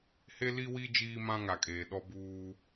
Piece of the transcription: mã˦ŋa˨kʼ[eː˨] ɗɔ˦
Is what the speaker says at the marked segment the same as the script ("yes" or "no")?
yes